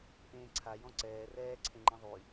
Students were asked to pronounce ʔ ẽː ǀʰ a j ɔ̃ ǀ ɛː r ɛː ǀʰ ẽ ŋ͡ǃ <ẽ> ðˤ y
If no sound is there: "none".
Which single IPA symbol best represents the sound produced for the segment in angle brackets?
ẽ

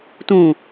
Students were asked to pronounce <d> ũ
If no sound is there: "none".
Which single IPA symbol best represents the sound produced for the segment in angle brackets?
t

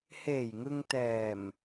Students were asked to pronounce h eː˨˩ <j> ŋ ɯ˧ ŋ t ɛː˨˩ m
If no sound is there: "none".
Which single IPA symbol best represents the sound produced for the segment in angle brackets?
j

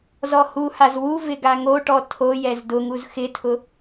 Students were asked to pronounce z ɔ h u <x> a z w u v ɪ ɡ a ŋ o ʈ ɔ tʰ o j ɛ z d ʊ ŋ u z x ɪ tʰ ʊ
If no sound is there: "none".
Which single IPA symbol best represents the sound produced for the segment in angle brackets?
h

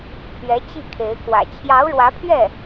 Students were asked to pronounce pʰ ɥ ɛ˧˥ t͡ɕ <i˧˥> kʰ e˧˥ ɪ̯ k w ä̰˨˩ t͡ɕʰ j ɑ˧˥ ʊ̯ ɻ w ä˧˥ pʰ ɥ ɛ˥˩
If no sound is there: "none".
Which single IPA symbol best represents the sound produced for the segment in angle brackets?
i˥˩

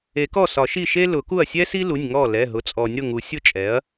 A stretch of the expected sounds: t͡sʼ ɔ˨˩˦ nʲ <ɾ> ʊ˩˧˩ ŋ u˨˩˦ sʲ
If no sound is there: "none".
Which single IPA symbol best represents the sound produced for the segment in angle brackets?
ɾ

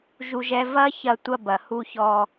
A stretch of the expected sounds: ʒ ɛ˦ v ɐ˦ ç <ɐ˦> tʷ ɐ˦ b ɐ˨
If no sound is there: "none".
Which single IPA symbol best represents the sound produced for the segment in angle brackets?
ɐ˦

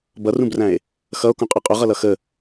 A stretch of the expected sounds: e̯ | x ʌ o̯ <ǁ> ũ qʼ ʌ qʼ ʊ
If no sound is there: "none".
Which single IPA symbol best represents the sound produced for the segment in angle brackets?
k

